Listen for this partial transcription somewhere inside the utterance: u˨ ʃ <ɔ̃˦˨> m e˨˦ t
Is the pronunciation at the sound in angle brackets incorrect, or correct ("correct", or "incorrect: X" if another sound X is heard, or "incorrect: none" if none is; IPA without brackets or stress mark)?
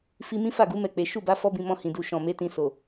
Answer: incorrect: ɔ̃˨